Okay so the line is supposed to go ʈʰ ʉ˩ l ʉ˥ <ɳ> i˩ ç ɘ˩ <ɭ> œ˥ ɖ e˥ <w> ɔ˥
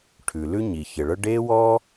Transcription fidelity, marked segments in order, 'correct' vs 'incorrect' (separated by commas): incorrect, correct, correct